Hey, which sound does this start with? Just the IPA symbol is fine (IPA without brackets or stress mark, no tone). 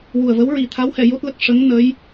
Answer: w